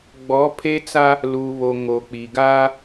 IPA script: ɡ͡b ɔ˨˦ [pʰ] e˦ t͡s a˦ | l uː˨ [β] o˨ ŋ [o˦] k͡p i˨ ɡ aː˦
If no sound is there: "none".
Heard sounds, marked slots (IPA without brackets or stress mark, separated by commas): pʰ, β, o˨